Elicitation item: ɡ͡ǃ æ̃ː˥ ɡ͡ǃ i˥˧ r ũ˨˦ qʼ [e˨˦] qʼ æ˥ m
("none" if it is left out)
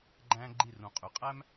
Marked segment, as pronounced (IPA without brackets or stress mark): y˨˦